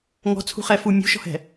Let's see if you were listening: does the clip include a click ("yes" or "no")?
no